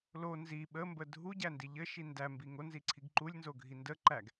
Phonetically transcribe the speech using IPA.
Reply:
l o n z i ɓ ə m b ə dʱ u ɟ æ n d i ʎ ɘ ʃ i n d æ m b i ŋ o n z i ǀʰ i ɡ ǃ u lʲ n z o ɡʱ i n d ə ǃ æ ɡ

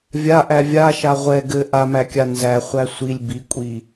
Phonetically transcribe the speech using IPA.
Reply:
vʲ a ʔ æ vʲ a ʃ a ʁʷ ɛ ɡ ɘ ʔ a m æ kʲ a n z æ χʷ æ sʷ i lʲ b i kʷʼ i

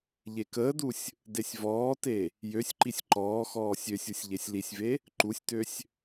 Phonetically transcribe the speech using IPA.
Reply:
ʎ e k əː d u sʲ | d e sʲ v ɔː t e | j ø sʲ ǃ i sʲ ǃ ɔː x ɔː sʲ ø sʲ u sʲ ʎ e sʲ l i sʲ v e | ǃ u sʲ t ø sʲ

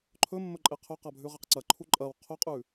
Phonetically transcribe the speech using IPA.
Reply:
ǃʰ ɵ mː ɵ ǃʼ e qʰ ɵ q a bʱ ʉ ʁ e q ǀ ɐ ǃʰ u ǃʼ ɐ w qʰ ɵ qʼ ʉ

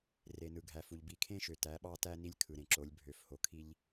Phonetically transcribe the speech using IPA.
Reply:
r e˨ n ɯ˨ ɡʱ æ˨ f u˨ ʎ b i˨ kʰ ẽ˦ ʃ ø˨ t æ˨˦ ɓ ɑ˦ t æ˦ n i˦ lʲ kʰ ɯ˨ ɾ ẽ˨ ǁ o˨˦ lʲ bʱ ø˨ f h o˨ kʰ i˦ ʎ

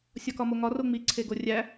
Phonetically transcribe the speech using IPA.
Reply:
sʲ ɒ k ɒ m o ŋ ɒ r o ŋ͡m i ǀʰ e ɡ o rʲ æ

